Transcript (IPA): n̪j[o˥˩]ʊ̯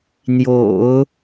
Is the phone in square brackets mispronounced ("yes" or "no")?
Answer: yes